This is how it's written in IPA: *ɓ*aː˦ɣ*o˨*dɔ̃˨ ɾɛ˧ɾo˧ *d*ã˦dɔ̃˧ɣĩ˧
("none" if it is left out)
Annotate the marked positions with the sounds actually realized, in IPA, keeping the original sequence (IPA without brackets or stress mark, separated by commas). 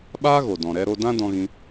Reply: ɓ, o˨, d